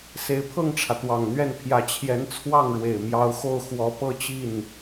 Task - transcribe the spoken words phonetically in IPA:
s e˧˥ ɪ̯ pʰ ɤ˥˩ ŋ ʈ͡ʂʰ ä˩ t̪ w ɑ˨˩ ŋ n̪ ɥ ɛ˥˩ n pʰ j ä˧˥ t͡ɕʰ j ɛ˧˥ n t͡sʰ w ɑ˥˩ ŋ ɻ w e˨˩ ɪ̯ m j ɑ˧˥ ʊ̯ x o˥˩ ʊ̯ x w ɔ˧˥ p ɤ˥˧ t͡ɕ i˥˩ n

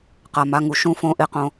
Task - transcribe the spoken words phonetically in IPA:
q a˩ m a˩˧˩ ŋ u˩ ʃ ũ˨˦ f õ˩˧˩ ʔ e˨˩˦ q õ˩

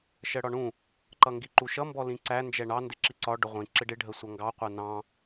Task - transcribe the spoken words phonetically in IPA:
ʃ ɜ ɽ ɒ ɳ ũ | ǃ ʌ ŋ ɡ i ǃ u ʃ ʌ m b ɔ l ĩ ǀ æ n d͡ʒ ɛ ɳ ɑ n d ɪ ǁ i ǀ ɒ ɖ ʊ ʁʷ ĩ ǁ ɪ ɖ ɪ ɖʱ ə sʷ ʌ ŋ ɡ ɑ qʷ ɜ n ɑ̃

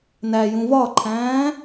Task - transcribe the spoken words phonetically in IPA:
n æ j ũ v ɒ ǃʰ æ̃ː

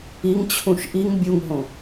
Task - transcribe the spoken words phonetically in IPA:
i ŋ t͡ɕʰ ũ ʃ ʔ i ŋ bʲ u ŋ ɦ õ

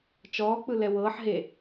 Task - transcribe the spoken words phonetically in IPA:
t͡ʃ ɔː k͡p ɯ l ɛ w ɤː ħ ɦ e

